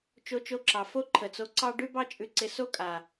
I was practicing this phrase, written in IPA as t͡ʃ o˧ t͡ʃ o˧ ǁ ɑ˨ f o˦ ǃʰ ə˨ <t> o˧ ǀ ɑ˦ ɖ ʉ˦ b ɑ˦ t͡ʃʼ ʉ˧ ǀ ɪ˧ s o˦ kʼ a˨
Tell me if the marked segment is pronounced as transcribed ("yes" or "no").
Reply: no